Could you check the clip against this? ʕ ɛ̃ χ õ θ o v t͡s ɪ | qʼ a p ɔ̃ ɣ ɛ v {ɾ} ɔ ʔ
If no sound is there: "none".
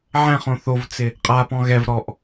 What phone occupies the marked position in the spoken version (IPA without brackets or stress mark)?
ɾ